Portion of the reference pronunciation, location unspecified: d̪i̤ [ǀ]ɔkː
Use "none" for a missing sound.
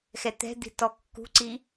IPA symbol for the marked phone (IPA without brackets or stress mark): t